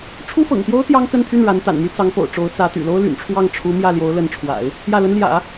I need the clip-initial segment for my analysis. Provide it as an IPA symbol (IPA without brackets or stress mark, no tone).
ʈ͡ʂʰ